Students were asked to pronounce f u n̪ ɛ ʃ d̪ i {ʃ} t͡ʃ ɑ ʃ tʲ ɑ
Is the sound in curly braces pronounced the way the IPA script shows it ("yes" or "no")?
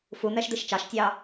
yes